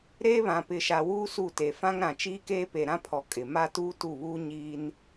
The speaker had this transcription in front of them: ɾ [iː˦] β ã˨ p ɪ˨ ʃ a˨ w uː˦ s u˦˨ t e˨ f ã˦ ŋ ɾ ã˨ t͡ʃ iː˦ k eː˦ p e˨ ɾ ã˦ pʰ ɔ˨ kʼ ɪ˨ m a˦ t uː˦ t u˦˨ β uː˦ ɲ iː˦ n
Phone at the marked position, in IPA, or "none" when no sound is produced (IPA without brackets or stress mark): eː˦